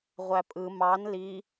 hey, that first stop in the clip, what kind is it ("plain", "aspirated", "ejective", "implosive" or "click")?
ejective